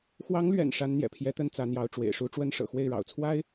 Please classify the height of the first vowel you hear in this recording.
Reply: low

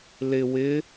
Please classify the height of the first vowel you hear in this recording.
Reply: high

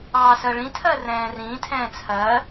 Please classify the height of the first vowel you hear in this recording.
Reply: low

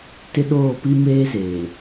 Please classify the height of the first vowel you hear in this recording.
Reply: high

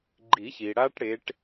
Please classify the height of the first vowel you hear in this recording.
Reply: high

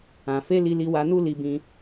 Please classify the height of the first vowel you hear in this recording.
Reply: low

